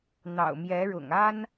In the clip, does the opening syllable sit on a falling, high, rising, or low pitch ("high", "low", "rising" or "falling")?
low